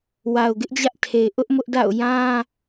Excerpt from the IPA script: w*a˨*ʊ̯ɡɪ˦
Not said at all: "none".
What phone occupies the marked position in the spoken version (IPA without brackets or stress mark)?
a˨